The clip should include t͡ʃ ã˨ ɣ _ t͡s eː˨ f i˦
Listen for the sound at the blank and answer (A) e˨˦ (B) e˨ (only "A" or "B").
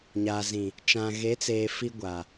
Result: A